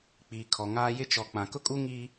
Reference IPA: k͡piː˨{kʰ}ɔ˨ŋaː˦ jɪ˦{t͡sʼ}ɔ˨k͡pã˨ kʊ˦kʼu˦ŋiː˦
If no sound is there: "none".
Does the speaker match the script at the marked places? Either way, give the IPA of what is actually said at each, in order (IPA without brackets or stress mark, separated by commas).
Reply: kʰ, t͡ʃ